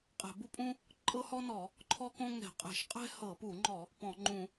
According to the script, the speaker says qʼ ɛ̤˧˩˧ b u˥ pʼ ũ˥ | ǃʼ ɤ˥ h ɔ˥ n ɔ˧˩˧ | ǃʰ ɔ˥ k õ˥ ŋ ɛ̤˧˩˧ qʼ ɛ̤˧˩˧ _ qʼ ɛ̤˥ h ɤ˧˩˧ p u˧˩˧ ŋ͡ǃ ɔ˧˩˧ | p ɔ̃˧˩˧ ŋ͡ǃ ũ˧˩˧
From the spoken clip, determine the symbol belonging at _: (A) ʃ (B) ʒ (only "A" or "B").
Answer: A